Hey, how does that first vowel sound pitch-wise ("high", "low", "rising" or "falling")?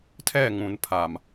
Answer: falling